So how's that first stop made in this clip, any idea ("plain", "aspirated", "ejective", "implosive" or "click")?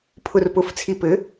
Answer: aspirated